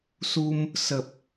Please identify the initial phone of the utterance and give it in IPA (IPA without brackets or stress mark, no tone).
s